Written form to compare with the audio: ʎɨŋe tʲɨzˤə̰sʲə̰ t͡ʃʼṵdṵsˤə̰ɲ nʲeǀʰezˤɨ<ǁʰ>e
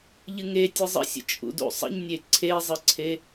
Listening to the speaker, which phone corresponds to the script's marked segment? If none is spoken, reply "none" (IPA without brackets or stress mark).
ǀʰ